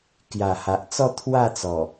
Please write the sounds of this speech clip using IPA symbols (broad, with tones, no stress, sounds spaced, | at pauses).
k j a˨˩ h a˨ ʔ t͡s ɔ˥˧ t̪ʰ w a˥˧ t͡s ɔ˨˩